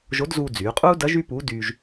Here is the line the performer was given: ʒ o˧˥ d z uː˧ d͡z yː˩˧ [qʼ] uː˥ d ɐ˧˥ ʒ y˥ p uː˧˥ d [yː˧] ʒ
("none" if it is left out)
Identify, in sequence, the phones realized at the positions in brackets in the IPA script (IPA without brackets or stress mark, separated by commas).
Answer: qʼ, yː˧